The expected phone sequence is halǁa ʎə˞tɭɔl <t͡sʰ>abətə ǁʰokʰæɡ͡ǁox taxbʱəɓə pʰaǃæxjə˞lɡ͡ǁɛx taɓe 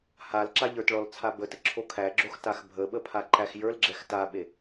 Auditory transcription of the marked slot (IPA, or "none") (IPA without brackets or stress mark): t͡sʰ